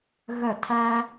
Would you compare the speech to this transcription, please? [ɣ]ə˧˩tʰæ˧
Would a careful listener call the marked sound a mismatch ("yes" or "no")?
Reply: no